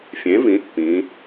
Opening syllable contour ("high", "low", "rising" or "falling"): rising